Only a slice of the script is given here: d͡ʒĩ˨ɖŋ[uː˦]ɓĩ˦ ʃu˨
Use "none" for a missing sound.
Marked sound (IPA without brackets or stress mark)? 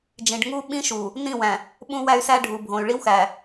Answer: u˦